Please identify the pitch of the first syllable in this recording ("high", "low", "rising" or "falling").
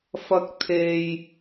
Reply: high